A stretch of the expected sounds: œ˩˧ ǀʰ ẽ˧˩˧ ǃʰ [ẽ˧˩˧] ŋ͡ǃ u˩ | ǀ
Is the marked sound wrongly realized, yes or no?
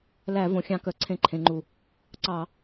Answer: yes